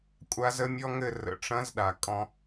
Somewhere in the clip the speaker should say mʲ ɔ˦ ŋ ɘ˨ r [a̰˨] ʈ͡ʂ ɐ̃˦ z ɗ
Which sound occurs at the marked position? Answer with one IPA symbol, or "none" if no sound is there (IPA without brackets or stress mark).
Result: ə̰˨